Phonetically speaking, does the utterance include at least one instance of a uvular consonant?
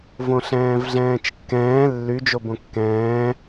no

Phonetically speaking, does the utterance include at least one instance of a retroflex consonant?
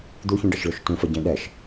yes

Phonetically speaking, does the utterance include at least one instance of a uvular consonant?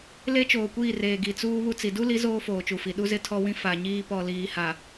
no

